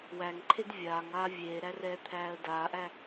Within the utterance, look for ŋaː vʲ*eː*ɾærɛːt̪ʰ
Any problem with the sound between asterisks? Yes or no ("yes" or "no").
no